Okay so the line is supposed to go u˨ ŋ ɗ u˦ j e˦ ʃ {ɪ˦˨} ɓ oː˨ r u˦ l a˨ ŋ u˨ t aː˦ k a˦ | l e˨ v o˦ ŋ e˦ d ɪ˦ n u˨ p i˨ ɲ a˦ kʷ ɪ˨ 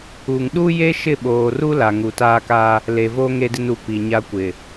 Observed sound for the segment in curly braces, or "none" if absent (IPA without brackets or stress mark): ɪ˦˨